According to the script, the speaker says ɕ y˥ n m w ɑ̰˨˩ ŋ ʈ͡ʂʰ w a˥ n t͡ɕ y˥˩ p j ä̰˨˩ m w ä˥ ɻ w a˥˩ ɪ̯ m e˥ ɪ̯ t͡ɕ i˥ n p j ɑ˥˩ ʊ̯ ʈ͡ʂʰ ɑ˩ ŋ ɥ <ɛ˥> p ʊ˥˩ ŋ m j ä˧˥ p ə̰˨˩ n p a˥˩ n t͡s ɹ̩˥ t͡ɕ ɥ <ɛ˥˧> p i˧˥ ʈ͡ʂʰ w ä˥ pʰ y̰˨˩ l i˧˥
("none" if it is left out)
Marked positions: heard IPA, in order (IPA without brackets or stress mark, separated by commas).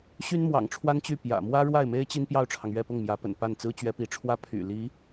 ɛ˥˧, ɛ˧˥